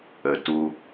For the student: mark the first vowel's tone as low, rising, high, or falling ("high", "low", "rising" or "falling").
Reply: low